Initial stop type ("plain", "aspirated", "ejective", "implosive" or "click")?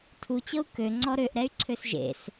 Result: aspirated